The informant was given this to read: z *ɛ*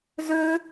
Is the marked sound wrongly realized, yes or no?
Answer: yes